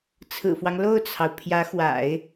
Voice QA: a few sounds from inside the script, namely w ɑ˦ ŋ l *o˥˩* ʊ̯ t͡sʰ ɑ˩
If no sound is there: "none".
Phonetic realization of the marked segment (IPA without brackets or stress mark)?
o˥˩